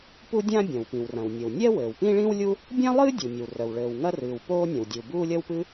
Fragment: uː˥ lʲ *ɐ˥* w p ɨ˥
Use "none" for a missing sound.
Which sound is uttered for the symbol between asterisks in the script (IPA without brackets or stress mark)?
ɐ˥